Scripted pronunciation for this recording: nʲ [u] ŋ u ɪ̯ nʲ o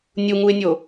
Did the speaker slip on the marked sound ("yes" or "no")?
no